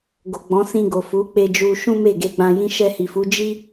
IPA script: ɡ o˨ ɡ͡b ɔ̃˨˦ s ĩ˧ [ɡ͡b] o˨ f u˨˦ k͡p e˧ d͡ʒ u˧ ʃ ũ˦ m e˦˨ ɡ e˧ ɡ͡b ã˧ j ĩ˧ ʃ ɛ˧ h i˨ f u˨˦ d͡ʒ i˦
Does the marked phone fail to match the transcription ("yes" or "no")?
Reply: yes